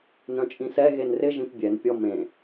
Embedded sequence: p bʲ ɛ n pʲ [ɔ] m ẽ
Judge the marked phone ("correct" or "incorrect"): correct